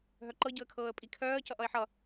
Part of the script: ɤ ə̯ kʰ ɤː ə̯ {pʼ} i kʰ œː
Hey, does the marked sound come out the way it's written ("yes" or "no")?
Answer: yes